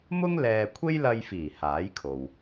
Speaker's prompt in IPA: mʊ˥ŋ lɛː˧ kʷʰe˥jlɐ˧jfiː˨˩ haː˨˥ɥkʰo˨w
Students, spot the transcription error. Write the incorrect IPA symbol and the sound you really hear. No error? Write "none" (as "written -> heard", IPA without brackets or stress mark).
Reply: ɥ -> j